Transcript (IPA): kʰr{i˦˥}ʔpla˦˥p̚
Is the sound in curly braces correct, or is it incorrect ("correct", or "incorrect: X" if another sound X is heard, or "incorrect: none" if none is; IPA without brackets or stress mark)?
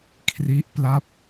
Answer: correct